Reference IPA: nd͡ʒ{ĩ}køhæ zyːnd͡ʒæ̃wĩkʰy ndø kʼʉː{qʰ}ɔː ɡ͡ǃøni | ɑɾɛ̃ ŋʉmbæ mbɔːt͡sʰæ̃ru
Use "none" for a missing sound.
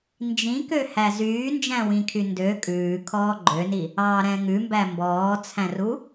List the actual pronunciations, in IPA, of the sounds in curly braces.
ĩ, kʰ

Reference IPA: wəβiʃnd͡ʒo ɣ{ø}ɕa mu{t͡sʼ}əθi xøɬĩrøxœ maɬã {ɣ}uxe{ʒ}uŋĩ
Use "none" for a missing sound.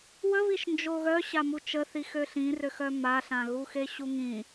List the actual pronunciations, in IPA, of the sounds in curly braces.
œ, t͡ʃ, ɣ, ɕ

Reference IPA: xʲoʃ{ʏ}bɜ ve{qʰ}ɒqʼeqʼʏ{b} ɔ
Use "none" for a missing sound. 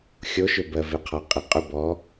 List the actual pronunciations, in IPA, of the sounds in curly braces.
ʏ, qʰ, b

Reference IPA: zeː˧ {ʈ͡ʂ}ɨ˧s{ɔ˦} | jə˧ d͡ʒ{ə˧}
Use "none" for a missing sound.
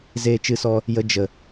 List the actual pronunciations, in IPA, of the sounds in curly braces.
t͡ʃ, ɔ˧, ə˨

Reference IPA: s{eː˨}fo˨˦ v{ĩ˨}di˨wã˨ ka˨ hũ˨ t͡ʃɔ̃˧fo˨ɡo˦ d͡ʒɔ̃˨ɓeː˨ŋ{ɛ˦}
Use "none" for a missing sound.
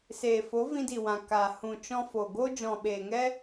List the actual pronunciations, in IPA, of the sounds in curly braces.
eː˨, ĩ˧, ɛ˦

